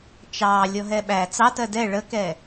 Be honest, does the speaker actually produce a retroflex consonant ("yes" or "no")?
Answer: yes